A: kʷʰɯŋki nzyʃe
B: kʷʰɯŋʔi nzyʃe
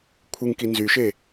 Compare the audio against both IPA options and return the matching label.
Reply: A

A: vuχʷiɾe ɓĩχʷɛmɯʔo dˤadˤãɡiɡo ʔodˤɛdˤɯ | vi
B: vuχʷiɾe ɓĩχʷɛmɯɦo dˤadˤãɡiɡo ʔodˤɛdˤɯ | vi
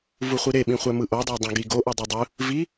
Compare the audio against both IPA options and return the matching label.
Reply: A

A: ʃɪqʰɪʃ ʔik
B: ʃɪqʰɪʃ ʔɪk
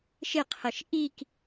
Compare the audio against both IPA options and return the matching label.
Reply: A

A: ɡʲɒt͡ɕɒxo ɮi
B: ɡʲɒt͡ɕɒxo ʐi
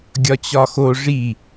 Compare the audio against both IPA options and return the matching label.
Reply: B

